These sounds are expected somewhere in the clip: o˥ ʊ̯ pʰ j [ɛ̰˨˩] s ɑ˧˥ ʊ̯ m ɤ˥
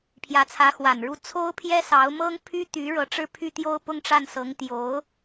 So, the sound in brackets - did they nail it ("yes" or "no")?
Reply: no